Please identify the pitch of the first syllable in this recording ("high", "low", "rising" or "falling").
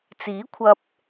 rising